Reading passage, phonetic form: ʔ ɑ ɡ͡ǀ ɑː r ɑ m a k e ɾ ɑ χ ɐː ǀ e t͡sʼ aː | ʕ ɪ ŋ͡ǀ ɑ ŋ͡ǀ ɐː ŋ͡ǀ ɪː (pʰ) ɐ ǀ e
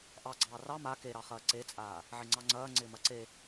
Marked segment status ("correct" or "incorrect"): incorrect